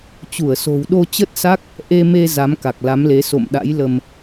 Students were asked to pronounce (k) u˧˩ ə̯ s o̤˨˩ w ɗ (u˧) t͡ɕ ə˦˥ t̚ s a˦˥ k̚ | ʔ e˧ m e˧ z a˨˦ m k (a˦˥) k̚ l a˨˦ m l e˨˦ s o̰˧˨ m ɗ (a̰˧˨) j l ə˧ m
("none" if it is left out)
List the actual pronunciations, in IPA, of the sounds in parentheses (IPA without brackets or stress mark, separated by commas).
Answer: t͡ɕ, o˧, a˨˩, a̰˧˥